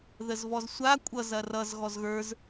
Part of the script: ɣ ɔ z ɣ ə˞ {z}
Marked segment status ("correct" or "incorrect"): correct